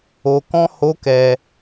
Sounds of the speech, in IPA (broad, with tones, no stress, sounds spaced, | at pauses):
o˧ k ɔ̃˦ h o˦ k ɛ˧